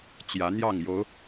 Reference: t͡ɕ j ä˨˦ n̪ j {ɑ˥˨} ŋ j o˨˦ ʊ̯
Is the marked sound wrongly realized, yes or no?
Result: no